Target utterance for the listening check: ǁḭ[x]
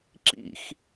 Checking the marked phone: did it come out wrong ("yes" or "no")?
no